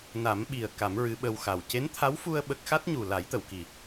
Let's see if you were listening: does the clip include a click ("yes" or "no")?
no